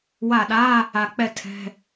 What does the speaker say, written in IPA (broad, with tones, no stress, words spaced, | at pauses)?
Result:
wa˧˩ɗa˧˥˧ | a˧˩ k͡pɛ˥ tʰɛ̤˧˥˧